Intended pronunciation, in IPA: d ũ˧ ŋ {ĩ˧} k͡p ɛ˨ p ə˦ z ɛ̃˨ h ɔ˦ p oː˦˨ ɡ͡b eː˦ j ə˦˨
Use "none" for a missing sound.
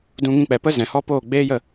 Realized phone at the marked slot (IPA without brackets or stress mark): ĩ˧